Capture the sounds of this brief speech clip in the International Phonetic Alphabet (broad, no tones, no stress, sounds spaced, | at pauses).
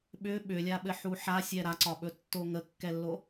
ɓ ʏ ɓ ʏ lʲ a ɓ ɘ ħ u ħ a sʲ ɛ ɾ a ǀ ɒ ɓ ɵ tː o ŋ ə kː ɛ lː o